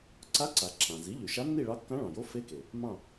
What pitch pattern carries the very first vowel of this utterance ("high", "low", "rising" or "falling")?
rising